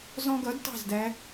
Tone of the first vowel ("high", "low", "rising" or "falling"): high